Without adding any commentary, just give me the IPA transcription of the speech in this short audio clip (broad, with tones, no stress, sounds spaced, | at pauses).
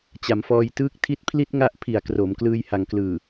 t͡ɕ a˩˦ m f ɔː˧ j t ɯː˥˩ k̚ tʰ i˦˥ t̚ pʰ l i˥˩ t̚ ŋ a˦˥ ʔ pʰ i˨˩ a̯ k r o˩˦ m k l ɯː˧ j h a˩˦ ŋ k l ɯː˨˩